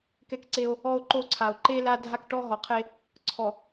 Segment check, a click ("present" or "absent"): present